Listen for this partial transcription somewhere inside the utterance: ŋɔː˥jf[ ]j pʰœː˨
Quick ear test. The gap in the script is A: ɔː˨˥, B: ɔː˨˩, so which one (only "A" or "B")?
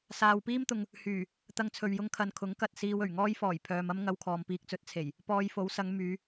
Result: B